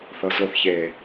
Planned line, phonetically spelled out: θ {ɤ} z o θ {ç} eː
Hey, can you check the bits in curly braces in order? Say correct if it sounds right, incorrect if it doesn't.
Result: correct, correct

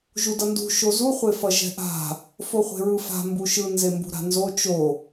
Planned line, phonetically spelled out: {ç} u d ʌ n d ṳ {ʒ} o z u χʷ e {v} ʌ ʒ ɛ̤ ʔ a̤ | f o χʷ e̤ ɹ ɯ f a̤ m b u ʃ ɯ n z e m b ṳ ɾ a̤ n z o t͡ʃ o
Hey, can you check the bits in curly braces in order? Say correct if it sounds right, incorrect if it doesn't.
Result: incorrect, incorrect, incorrect

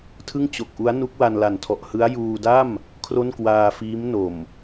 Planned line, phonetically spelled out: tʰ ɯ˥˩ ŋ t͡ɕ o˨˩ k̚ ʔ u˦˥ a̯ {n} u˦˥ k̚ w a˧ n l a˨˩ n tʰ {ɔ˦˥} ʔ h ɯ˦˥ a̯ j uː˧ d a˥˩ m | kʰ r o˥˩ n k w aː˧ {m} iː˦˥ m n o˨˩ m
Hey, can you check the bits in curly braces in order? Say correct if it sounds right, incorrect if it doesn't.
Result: correct, incorrect, incorrect

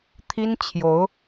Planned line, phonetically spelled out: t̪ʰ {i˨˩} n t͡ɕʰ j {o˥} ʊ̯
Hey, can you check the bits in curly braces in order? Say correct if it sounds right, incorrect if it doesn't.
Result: incorrect, incorrect

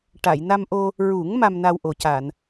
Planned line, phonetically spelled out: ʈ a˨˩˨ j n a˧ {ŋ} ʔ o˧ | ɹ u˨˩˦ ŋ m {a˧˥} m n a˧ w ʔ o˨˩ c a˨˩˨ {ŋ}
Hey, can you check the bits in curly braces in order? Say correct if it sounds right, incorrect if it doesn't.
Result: incorrect, incorrect, incorrect

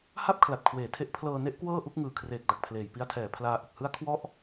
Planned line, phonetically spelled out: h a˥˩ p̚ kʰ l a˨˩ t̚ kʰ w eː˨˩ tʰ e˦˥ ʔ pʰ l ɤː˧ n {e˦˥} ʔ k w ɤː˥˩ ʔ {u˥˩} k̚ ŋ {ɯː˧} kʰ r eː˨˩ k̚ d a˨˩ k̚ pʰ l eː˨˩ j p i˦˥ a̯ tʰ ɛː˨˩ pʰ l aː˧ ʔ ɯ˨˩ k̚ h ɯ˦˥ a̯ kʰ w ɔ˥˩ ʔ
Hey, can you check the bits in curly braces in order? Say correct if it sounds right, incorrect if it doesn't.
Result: correct, correct, incorrect

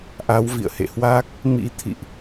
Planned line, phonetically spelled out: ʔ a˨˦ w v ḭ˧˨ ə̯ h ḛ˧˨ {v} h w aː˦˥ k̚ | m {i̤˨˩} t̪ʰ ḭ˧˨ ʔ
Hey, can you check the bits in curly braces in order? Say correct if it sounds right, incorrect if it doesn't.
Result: incorrect, incorrect

